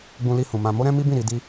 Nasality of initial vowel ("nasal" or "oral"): nasal